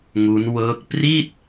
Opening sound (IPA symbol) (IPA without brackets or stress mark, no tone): ŋ